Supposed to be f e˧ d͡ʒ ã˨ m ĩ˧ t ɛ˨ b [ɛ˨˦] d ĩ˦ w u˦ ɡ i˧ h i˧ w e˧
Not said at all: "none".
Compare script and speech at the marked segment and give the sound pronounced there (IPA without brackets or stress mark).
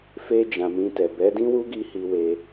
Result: ɛ˨˦